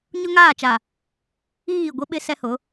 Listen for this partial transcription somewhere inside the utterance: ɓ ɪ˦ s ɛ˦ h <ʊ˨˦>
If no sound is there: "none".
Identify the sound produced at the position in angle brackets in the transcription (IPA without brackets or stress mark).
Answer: ʊ˨˦